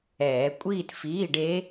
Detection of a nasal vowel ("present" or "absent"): absent